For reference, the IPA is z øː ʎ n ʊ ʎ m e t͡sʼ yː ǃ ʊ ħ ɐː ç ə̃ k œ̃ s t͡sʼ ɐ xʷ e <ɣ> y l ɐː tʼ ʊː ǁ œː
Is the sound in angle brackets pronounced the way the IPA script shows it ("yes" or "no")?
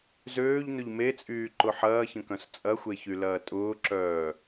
no